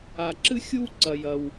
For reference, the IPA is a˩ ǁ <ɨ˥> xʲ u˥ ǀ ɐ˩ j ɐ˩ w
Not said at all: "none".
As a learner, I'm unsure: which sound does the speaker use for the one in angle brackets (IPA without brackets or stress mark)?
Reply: ɨ˥